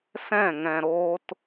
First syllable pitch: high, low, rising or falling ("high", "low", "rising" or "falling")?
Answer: falling